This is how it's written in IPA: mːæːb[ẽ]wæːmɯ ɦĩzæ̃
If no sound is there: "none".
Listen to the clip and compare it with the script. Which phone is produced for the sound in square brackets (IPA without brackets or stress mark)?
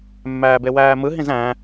e